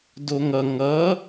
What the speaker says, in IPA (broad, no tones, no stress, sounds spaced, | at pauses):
d o ŋ ʌ ŋ ʌ